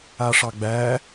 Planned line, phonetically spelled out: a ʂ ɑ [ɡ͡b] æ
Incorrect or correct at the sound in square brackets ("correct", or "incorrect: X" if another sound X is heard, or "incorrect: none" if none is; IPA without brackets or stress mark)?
correct